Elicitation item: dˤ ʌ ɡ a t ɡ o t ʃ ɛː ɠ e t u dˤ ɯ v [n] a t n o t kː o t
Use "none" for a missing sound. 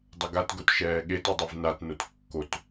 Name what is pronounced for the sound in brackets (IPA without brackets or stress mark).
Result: n